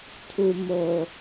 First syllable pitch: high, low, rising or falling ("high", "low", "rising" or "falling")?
low